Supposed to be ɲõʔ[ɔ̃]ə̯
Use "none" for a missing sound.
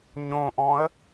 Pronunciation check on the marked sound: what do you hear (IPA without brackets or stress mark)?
ɔ̃